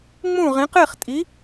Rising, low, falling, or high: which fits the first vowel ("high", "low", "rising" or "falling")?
falling